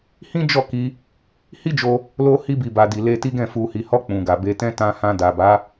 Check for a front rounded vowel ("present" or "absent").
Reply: absent